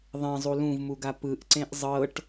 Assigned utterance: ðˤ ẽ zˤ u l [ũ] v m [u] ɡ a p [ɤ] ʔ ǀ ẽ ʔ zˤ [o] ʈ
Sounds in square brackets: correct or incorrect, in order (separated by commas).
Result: correct, correct, incorrect, incorrect